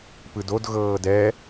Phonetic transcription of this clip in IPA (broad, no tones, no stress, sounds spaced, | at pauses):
p ɯ d o d ɣ ɤː d ɛ